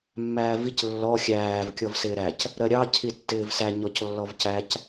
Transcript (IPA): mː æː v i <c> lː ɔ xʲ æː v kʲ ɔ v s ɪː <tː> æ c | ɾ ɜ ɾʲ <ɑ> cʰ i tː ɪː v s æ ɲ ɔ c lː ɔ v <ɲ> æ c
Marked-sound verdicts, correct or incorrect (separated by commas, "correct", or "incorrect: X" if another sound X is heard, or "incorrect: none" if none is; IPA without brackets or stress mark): correct, incorrect: ɾ, correct, incorrect: c